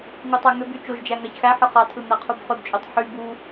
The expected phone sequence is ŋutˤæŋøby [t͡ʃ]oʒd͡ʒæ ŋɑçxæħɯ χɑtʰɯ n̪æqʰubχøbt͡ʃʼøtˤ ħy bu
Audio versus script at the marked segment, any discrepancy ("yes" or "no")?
no